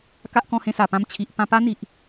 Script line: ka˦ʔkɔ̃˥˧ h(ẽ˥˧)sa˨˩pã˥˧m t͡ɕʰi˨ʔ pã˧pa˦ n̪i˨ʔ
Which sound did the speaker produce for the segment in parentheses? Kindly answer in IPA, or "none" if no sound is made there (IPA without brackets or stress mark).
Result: ẽ˥˧